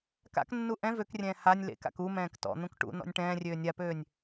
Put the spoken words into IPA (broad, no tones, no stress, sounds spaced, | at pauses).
k a̰ k nː u ʔ ɛ̃ v ø k rʲ ɛ̃ː h a nʲ l ḛ k a̰ k u m ɛ̃ː k t ɔ̰ n̪ ũ k ʈ ṵ n ɔ̰ nʲ ʈ ɛ̃ː rʲ øː nʲ a p øː nʲ